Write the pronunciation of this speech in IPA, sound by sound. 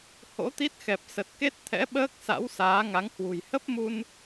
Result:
h o̰˧˥ t̪ i˦˥ t̚ x ɛ˨˩ p̚ s ə˨˩ t̚ k e˦˥ t̚ t̪ʰ ɛ̰˧˥ ɓ əː˦˥ k̚ s a̰˧˥ w s aː˨˦ ŋ a˨˦ ŋ h w ṳ˨˩ j h ə˦˥ p̚ m u˧ n

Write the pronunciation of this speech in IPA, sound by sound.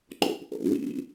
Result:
ŋ͡ǃ ɔ̰ p ʔ ɑ̰ w ḭ

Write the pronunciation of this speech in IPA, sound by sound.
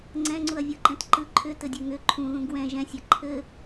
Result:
ŋ͡ǀ ɛ̃ ŋ͡ǀ u ɐ̯ vʲ ɤ ǃ ɛ̃ t ǃ ɯ ǃʰ ʏ t ɘ dʲ ɛ ŋ ʏ ǃʰ ũ ð ũ ɡ w ɛ̃ ʒ ɛ̃ sʲ a ǃʰ ɘ

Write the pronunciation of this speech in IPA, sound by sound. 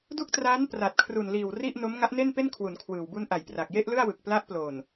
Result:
d u˥˩ k̚ t r aː˦˥ n p r a˨˩ t̚ kʰ r u˨˩ n l iː˨˩ w r i˥˩ ʔ n o˦˥ m ŋ a˦˥ ʔ n e˥˩ n p e˥˩ n kʰ w u˩˦ n kʰ w ɯː˨˩ w b u˦˥ n ʔ a˨˩ j p r a˨˩ k̚ j e˥˩ ʔ l ɯ˥˩ a̯ w ɯ˨˩ k̚ p l a˦˥ ʔ p l o˨˩ n

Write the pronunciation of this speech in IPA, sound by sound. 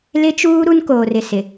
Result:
l ɪ˦ t͡ʃ uː˦ ɾ u˦ n k oː˨ r ɪ˨ s ɪ˨

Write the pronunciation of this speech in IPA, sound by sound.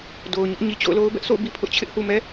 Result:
d o˨ ʊ̯ ɲ ʊ˦ ʔ ɲ i˨ t͡ɕ o̰˦˨ ʊ̯ l o˦ ʊ̯ b ɛ˦ ʔ sʰ o̰˦˨ ʊ̯ b i˦ pʰ ʊ˦ ʔ t͡ɕʰ ɪ˦ ʔ h u˨ m ɛ˦

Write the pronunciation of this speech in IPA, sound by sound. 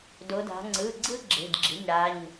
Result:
d o˩˧ d a̤˩˧ ŋ͡ǀ ɯ˩˧˩ ɡ͡ǀ ɯ˥ ɡ͡ǁ e̤˩˧˩ d ɡ͡ǁ i̤˩˧˩ ɲ ɽ a˩˧˩ ɲ

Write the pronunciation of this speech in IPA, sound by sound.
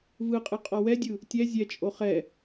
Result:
v ɯ qʼ ɯ qʼ ɔ w ɛ dʲ ɯ | tʲ ɛ zʲ ɛ t͡ʃʼ o χ ɛ

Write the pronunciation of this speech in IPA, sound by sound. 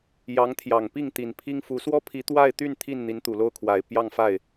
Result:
j ɑ˧˥ ŋ t̪ʰ j ɑ˨˩ ŋ p i˥˩ ŋ t̪ i˨˩ n pʰ i˥ ŋ f u˧˥ s w ɔ˥ pʰ i˧˥ t̪ w a˥˧ ɪ̯ t̪ y˥˧ n t̪ʰ i˥˩ n n̪ i˧˥ n t̪ u˨˩ l o˥ ʊ̯ kʰ w a˨˩ ɪ̯ p j ɑ˥˧ ŋ f a˥˩ ɪ̯

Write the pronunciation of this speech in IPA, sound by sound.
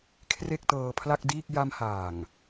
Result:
kʰ r e˥˩ k̚ t ɤː˧ pʰ l a˥˩ k̚ d iː˥˩ k̚ j a˧ m h aː˨˩ ŋ

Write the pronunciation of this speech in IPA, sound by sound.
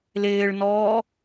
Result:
l ɪː ɭ n ɔː

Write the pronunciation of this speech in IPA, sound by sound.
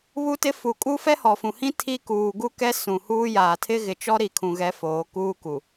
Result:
β u˦ t ɪ˦ f u˨ kʼ u˦ f ɛ˦ h ɔ˨ f ũ˨ h ĩ˦ tʰ i˦ k uː˨ ɡ u˦ k ɛ˦ s ũ˨ h uː˦ j aː˨ tʰ ɪ˦ ɣ ɪ˨ t͡ʃ ɔ˦ ɾ i˨ kʰ ũ˨ ɣ ɛ˨˦ f oː˨˦ k uː˦ k u˨

